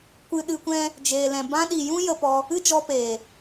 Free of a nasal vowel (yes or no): no